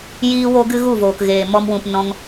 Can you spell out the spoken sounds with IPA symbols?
j iː˦ w o˦ ɡ ɨ˦ ɣ u˦˨ v oː˨ k ɣ eː˨ m ɔ˧ m w ũ˨ p n ɔ̃˧ ŋ

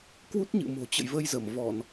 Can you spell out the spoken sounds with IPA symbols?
k w u˦˥ t̚ ɲ ɨ̰˧˨ m o̤˨˩ t͡ɕ ə̰˧˨ j v ə˧ j z ə˧˩ m v ɔ˧˩˨ n

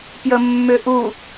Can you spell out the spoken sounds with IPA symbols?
p j ə mː ʏ ʔ u

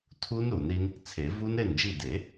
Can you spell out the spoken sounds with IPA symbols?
tʰ u˦˥ n ɾ u˨˩˦ n ɾ i˦˥ n | t͡sʰ e˨˩˦ v u˦˥ n ɾ e˥˩ n d͡ʒ i˥˩ d e˨˩˦

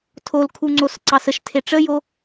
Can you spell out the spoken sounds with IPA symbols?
tʰ o l kʰ u ŋ͡ǀ o s ǀ ɑ s ə ʃ tʰ e ʈ͡ʂ ə j o

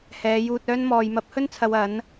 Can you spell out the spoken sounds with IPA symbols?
h ɛː˨˧ j uː˧ t̚ œː˥ n m ɔː˨ j m ɐ˨˥ p̚ h ɵ˥ n t͡sʰ ɐ˨ w ɐ˨˥ n

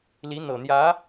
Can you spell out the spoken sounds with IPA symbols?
l i˧˥ n̪ ɤ˨˩ n̪ j ä˧˥

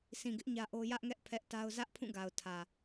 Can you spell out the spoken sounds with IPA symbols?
sʰ ĩ˨ ɡ ɪ˦ ʔ ɲ ä˦ ʔ o˦ j ä˦ ʔ ŋ ɛ˦ ʔ pʰ ɛ˦ ʔ t a˦ ʊ̯ z ä˦ ʔ pʰ ũ˦˨ ɡ a˨ ʊ̯ tʰ ä˨

